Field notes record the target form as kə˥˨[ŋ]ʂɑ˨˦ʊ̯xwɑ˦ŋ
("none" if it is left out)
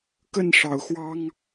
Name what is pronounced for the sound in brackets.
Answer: n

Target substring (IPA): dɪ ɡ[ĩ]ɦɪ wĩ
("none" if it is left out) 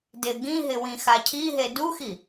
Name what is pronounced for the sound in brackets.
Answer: ĩ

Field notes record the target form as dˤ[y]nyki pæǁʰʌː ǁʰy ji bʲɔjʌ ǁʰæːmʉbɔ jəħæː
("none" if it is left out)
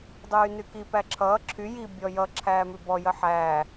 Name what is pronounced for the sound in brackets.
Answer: yː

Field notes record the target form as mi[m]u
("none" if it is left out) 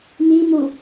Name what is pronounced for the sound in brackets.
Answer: m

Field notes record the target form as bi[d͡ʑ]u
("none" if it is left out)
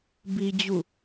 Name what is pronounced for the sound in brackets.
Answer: d͡ʑ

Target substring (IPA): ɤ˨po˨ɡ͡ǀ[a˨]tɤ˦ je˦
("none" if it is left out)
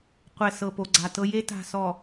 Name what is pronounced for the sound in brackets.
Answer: a˨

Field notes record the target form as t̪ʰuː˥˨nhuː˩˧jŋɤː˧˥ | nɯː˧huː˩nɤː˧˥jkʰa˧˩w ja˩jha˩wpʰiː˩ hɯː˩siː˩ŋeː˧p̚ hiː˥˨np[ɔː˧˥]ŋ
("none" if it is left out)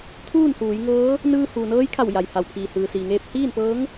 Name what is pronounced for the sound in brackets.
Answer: ɤː˧˥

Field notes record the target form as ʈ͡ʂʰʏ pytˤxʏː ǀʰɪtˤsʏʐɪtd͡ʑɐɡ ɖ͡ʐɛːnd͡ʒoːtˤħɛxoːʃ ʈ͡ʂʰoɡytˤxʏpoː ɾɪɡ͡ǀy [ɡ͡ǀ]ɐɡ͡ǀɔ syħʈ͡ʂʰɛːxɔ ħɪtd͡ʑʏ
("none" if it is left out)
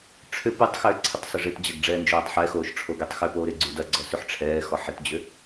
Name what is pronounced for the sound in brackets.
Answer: d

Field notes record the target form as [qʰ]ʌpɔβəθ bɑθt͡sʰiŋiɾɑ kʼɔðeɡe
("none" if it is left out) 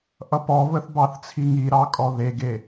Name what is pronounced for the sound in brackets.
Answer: ʔ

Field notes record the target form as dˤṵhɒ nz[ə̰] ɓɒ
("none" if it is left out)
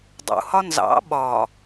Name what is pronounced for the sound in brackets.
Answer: ɑ̰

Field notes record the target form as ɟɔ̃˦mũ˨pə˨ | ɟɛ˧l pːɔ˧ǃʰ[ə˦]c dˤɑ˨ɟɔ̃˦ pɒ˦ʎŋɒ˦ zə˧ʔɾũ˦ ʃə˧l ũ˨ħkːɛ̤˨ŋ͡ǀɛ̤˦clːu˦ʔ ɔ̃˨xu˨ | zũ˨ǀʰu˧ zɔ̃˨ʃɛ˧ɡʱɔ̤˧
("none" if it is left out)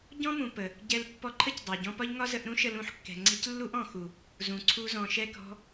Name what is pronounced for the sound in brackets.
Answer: ə˦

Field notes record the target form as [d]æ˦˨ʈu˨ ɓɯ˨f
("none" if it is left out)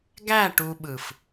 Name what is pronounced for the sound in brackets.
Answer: ɡ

